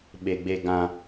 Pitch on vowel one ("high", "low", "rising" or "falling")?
low